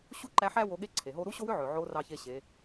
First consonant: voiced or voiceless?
voiceless